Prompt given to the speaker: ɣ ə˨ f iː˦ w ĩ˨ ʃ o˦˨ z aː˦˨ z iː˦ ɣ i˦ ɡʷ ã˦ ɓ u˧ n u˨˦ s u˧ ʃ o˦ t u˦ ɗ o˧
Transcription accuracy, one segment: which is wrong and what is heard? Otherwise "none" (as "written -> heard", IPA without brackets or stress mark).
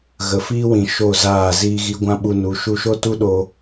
s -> ʃ